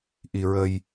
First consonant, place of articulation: glottal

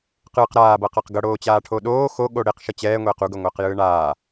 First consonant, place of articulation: uvular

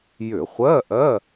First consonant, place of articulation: palatal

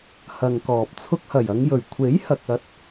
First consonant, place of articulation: glottal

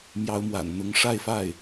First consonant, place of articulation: labial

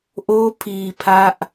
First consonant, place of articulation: glottal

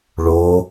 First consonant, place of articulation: retroflex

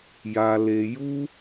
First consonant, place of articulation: palatal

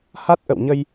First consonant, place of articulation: glottal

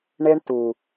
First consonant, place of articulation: retroflex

